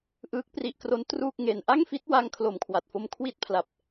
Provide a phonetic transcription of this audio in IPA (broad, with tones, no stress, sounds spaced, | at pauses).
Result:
ʔ ɯː˦˥ k̚ p r i˦˥ ʔ k r o˦˥ n t r uː˥˩ k̚ ŋ e˧ n ʔ a˥˩ ŋ f i˦˥ t̚ w a˦˥ ŋ kʰ l o˨˩ m kʰ w a˨˩ t̚ f o˧ m kʰ w i˥˩ t̚ pʰ l a˨˩ p̚